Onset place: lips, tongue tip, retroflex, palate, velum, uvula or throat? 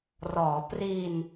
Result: tongue tip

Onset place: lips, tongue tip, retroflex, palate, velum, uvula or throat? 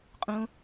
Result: uvula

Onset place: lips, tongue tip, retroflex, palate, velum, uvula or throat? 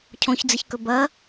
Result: palate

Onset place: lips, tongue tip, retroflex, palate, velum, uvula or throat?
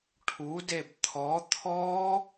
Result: retroflex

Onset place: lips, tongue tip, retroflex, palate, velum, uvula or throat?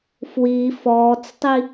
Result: lips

